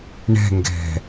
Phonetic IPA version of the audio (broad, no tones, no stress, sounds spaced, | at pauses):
ɳ ɛ̤ ŋ ɡ ɛ̤